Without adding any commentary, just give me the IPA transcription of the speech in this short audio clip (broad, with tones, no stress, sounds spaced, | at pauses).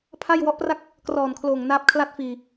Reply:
pʰ a˥˩ j w ɔ˦˥ ʔ p r a˥˩ k̚ | k r ɔː˨˩ n kʰ l oː˨˩ ŋ n aː˦˥ p̚ kʰ l a˥˩ t̚ f iː˧